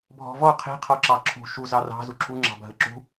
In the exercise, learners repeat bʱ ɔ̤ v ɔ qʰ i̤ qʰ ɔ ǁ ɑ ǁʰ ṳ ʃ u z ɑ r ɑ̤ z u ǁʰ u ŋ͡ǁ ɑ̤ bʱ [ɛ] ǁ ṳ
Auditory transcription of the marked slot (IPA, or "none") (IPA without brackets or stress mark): ə